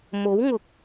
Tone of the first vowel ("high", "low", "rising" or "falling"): rising